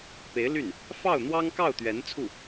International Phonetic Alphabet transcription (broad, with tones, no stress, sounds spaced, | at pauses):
p e˧˥ ɪ̯ l y˥˩ n | f ɑ˥˩ ʊ̯ n̪ w ɑ˥ ŋ k ɑ˥˩ ʊ̯ t̪ ɥ ɛ˧˥ n t͡sʰ u˥˩